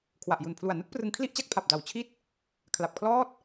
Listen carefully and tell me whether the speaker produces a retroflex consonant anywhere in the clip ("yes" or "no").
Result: no